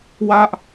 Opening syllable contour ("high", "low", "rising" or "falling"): high